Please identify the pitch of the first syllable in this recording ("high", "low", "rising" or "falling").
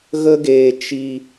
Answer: high